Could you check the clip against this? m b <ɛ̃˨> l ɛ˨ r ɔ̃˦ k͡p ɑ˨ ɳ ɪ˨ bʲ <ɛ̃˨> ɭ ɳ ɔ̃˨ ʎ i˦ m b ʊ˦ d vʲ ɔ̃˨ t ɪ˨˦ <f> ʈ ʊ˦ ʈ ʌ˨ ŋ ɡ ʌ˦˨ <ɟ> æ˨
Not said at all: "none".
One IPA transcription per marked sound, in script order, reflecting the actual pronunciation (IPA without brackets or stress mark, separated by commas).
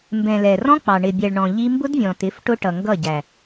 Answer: ɛ̃˨, ɛ˨, f, ɟ